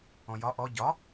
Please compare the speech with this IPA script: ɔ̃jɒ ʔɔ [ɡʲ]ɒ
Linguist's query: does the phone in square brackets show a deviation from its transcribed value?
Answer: yes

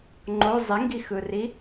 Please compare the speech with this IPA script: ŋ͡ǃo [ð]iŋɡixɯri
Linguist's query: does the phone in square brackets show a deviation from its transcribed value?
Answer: yes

